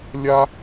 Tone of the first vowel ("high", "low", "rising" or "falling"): high